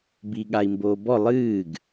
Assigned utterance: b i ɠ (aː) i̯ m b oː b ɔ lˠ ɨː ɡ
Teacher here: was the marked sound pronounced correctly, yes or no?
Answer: no